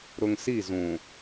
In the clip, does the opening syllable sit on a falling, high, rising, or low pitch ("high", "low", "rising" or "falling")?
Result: low